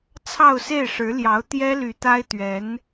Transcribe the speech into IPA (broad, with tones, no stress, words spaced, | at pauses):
t͡sʰɑ˥˧ʊ̯se˥˩ɪ̯ʂɻ̩˧˥ljɑ˧˥ʊ̯ t̪jɛ˥ly˧˥t̪a˥ɪ̯t̪ɥɛ˧˥n